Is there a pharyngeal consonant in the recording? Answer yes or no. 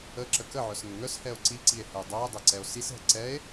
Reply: yes